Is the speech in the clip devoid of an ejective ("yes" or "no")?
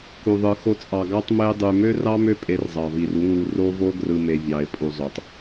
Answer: no